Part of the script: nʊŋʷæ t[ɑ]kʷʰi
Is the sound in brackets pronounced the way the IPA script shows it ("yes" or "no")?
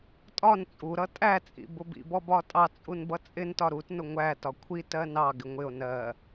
no